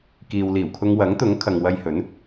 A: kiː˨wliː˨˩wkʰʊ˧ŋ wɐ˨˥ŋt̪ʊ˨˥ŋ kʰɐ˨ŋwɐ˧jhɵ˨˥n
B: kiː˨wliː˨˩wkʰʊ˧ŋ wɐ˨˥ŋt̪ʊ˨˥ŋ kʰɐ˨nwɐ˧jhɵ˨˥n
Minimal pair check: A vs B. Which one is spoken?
A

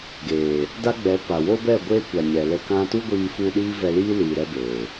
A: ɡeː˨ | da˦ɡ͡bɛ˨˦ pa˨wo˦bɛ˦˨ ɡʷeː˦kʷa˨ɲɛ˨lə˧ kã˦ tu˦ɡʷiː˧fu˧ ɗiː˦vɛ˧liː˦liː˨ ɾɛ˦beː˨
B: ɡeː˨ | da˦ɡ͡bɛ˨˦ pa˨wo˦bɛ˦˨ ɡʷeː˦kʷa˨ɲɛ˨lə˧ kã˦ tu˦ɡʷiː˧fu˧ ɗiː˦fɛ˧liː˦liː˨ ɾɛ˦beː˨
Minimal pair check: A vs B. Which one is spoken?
A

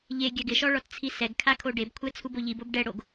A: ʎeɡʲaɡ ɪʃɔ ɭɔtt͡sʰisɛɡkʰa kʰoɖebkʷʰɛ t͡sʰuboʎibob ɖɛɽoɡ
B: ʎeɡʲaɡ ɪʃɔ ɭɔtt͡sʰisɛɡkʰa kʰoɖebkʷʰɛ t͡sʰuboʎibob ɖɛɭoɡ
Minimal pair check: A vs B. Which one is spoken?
A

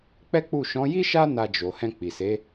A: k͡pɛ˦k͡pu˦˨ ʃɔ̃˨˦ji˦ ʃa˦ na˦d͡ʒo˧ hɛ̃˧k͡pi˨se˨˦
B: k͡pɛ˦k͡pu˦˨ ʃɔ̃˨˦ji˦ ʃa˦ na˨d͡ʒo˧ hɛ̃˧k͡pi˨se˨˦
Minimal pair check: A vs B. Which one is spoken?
A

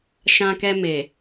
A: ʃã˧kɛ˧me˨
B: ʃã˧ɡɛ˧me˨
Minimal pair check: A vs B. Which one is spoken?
A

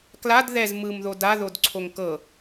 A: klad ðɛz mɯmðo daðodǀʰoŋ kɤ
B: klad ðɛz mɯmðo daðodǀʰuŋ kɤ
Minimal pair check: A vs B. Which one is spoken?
A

